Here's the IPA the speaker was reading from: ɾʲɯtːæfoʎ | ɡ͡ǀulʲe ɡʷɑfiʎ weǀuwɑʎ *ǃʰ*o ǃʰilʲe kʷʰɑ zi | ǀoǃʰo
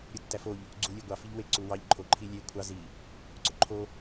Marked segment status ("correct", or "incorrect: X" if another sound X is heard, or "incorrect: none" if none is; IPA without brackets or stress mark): correct